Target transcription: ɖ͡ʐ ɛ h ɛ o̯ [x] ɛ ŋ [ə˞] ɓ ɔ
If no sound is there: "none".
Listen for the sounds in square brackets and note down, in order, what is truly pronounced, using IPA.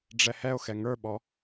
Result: x, ə˞

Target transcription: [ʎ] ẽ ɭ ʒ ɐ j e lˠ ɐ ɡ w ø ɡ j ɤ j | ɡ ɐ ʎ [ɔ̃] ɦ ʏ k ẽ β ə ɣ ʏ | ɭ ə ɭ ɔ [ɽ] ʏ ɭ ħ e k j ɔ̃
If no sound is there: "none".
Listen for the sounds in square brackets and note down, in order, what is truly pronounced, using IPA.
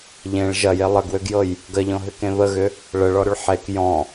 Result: ʎ, ɔ̃, ɾ

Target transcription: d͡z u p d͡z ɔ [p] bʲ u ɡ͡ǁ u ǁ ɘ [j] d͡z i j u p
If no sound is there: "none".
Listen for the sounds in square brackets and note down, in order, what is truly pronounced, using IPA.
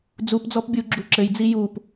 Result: p, j

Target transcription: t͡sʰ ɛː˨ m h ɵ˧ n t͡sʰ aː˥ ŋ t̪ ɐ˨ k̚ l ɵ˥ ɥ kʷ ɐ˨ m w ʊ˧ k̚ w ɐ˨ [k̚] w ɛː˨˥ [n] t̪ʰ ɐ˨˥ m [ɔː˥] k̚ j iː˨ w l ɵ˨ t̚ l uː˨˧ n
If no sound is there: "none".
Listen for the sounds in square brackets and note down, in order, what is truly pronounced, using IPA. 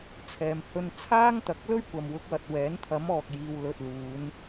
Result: t̚, n, ɔː˨

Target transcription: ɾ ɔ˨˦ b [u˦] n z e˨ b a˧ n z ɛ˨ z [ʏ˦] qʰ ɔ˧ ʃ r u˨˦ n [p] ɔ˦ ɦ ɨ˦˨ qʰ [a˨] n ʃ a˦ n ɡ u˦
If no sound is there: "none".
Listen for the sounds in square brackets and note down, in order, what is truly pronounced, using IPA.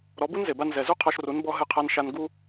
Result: u˦, u˦, b, a˦

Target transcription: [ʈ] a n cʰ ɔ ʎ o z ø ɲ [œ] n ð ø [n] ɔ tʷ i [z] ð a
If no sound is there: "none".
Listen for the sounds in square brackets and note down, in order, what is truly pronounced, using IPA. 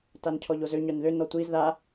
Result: t, œ, n, z

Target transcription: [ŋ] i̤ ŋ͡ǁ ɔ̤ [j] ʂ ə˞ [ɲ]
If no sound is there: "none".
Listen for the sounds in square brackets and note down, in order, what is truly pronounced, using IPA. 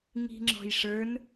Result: ŋ, j, n

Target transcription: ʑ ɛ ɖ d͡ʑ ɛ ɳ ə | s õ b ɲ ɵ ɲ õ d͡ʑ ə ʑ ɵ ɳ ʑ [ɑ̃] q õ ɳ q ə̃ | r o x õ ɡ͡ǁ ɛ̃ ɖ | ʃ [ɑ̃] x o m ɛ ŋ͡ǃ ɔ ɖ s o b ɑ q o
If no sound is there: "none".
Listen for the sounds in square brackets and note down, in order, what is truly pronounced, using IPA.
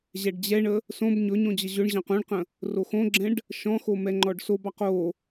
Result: ɑ̃, ɔ̃

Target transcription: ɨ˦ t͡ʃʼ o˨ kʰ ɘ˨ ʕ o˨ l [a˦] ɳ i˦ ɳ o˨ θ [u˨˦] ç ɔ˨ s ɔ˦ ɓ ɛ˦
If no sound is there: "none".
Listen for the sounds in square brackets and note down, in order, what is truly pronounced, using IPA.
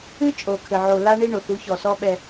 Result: a˦, u˨˦

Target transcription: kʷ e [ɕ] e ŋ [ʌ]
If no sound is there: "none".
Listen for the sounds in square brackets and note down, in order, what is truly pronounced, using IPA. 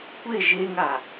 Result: ʒ, a

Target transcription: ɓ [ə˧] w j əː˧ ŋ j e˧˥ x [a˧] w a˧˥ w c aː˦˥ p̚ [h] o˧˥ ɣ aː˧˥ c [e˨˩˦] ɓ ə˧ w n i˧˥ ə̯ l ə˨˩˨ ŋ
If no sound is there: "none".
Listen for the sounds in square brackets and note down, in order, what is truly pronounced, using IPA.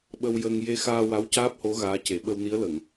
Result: ə˧, aː˧, h, e˨˩˦

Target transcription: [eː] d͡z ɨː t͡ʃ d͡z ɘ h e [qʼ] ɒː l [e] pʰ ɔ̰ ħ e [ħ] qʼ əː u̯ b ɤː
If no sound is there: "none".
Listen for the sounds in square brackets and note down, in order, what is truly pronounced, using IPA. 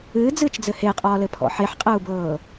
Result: ɨː, qʼ, ɘ, ħ

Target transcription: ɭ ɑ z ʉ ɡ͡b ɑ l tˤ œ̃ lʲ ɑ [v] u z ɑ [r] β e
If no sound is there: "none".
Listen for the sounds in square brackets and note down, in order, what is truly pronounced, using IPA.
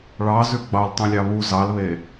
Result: β, l

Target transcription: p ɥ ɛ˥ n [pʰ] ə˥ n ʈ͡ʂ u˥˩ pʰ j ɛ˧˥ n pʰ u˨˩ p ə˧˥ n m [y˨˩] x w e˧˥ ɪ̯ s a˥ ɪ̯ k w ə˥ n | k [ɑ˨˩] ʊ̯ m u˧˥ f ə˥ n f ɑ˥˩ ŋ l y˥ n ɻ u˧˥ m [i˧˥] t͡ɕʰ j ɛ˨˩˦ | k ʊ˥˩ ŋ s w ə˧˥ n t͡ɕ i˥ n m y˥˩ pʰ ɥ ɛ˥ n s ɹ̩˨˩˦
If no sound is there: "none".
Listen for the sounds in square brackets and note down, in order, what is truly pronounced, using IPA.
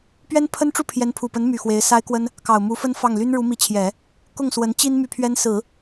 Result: pʰ, y˨˩, ɑ˨˩, i˧˥

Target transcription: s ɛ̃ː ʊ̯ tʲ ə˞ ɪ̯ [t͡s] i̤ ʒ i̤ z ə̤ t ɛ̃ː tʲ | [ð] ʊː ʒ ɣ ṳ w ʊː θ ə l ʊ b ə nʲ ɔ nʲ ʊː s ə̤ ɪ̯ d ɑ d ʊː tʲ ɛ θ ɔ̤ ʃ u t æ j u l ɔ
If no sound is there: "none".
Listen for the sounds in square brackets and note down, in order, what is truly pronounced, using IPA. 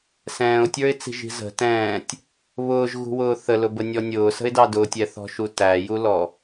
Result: t͡s, β

